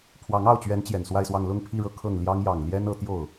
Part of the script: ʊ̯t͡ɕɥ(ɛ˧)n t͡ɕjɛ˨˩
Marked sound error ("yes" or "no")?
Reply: yes